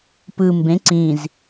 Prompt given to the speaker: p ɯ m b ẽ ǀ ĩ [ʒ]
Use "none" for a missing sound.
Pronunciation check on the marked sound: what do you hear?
z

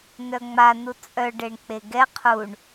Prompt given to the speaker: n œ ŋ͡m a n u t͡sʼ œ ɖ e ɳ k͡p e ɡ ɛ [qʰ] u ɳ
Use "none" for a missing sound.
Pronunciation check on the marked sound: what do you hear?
qʰ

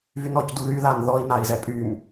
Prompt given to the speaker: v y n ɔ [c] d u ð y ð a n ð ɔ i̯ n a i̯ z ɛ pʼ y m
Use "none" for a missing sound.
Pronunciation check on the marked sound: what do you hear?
c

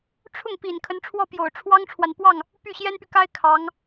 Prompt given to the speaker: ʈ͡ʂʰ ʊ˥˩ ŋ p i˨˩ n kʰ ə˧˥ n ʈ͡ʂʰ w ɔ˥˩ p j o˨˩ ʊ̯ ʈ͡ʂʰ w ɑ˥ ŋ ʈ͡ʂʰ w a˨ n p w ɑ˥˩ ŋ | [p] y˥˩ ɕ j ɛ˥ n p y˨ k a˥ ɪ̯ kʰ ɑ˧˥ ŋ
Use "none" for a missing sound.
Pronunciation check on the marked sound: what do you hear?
p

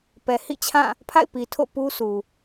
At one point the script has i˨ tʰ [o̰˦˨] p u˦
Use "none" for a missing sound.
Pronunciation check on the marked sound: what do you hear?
o̰˦˨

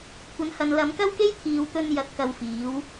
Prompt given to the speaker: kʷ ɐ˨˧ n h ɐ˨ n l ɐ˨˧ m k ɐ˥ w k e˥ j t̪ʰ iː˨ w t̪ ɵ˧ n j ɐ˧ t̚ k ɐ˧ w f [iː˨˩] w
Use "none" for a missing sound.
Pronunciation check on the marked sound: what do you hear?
iː˨˥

